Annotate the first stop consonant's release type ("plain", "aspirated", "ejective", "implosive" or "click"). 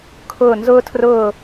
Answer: aspirated